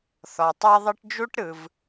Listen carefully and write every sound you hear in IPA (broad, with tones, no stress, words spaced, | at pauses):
θɔ˩tˤɛ˥ðˤɯ˥ʈ d͡ʒu˥ʈɾɯ˩v